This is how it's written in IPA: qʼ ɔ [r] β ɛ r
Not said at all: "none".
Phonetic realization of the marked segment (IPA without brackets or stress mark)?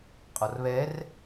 r